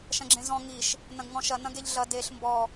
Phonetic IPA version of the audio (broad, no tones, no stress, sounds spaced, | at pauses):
ʃ ɐ̃ ɡ͡ǁ ẽ z ɔ̃ ŋ i ʃ | n ɐ̃ ɡ ŋ ɔ̃ ʃ ɐ n ɐ̃ ɡ e ʎ ɮ ɐ d e ɬ m b ɔ